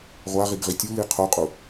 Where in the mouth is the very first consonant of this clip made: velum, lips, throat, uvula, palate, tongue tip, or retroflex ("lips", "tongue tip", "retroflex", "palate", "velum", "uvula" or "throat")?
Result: uvula